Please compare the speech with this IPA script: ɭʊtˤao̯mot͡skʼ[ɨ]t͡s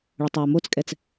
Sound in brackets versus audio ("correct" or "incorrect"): incorrect